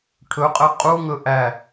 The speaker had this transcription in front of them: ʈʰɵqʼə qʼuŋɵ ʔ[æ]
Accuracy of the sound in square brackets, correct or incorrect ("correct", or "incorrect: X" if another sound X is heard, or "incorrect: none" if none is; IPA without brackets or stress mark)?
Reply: correct